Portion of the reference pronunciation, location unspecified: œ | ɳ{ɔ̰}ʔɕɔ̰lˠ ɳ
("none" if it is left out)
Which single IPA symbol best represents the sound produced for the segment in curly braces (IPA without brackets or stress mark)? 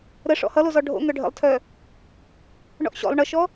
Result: ɔ̰